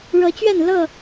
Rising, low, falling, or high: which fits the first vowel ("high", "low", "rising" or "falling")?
rising